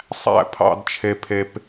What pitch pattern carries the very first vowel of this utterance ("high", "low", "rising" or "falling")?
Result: high